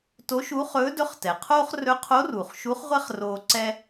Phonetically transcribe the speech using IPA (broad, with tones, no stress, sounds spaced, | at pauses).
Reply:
t o˧˥ ʃ uː˧˥ χ ɵː˧˥ d ɵ˧˥ χ t ɛ˩ qʰ oː˥ χ r ɵ˧˥ qʰ o˧˥ r uː˩ χ ʃ u˧˥ χ ʁʷ ɛ˥ χ r oː˧ ǀ ɛ˥